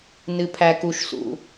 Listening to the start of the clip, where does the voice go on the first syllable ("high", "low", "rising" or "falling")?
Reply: low